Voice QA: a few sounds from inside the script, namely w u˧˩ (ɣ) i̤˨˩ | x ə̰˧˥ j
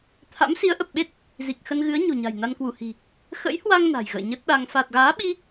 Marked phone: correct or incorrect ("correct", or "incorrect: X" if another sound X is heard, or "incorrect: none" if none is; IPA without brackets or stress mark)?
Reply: incorrect: h